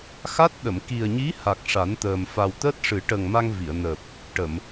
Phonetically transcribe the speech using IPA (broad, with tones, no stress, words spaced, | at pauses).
xa˦˥t̚ ɗə˨˩˨m ki˨˩ə̯ɲi˧˥ ha˨˩k̚ ʂa˨˩˦nt̪əː˨˩m fa˨˩wt̪əː˦˥t̚ʂɨ˨˩˦ ʈə˨˩ŋ ma˧ŋvi˨˩˨ə̯nəː˨˩p̚ | ʈə˨˩˨m